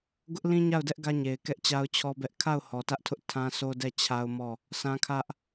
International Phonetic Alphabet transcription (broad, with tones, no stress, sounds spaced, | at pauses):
ɡ ʊ˦ ʔ l ĩ˦ ɲ a˦˨ ʊ̯ d ɛ˦ ʔ ɡ ä˦ ɲ e˨ ɪ̯ k ɛ˦ ʔ t͡ɕ a˦ ʊ̯ t͡ɕʰ ɔ˦ b ɛ˦ ʔ kʰ a˦˨ ʊ̯ h ɔ˨ t ä˦ ʔ tʰ ʊ˦ ʔ tʰ ã˦ sʰ o˦ d ɛ˦˨ t͡ɕʰ a˦ ʊ̯ m ɔ˦˨ | s ã˦ kʰ ä˦ ʔ